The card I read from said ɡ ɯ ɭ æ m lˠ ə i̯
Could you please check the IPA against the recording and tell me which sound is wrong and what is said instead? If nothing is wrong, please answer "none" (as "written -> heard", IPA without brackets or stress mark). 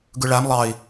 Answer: ə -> ɑ